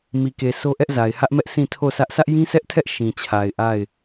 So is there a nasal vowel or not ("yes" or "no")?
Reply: yes